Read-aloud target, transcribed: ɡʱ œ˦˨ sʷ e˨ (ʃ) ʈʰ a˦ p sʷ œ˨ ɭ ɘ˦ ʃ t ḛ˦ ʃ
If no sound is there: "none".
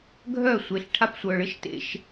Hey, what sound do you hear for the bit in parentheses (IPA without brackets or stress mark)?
ɬ